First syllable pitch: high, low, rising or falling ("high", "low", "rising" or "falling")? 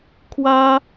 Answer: high